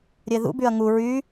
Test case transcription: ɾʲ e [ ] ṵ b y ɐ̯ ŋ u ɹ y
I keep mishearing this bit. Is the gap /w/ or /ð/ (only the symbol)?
ð